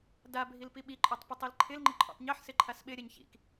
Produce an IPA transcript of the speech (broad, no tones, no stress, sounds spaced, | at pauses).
d a bʱ i l p i ɓ i ǃʼ ɔ tˤ p ɐ tˤ i l ǃʰ ɪ l ŋ͡ǃ ɪ ǃʼ ɔ̰ tˤ ɲ ɛ ħ s ɪ ǃʰ a s ɓ ɪ ɾʲ ɛ ɲ ç ḭ k